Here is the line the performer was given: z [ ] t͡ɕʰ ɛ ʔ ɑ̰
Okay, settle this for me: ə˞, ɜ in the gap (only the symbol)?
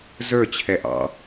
ə˞